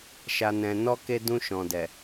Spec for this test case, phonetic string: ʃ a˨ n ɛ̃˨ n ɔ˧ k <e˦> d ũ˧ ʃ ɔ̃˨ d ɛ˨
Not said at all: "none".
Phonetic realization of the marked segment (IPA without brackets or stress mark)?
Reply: e˧